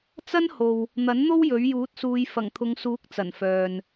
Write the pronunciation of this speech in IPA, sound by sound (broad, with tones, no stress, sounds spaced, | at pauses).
t͡s ɐ˥ n h o˨ w | n̪ ɐ˨˥ n n̪ o˥ w j ɵ˨˥ ɥ j uː˨˥ t̚ s uː˨˧ j f ɐ˨˩ ŋ t̪ʰ ʊ˨˧ ŋ s uː˨˥ k̚ t͡s ɐ˨˩ n f œː˨ n